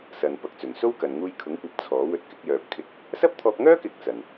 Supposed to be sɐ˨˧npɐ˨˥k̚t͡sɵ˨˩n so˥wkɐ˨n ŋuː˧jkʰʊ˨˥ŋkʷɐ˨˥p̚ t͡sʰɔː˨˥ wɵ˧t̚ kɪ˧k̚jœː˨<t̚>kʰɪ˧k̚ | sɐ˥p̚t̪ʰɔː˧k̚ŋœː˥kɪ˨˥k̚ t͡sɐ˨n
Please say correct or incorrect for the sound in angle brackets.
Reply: incorrect